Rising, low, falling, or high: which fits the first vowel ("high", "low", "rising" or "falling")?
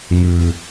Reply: low